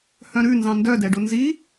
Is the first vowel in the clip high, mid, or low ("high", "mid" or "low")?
mid